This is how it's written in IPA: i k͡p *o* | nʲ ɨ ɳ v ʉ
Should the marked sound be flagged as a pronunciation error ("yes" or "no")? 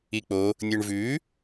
no